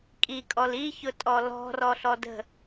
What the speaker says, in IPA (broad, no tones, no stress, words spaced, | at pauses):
kʼikʼɔl içʊtʼɔ lɔ̤rɔɬɔ də̤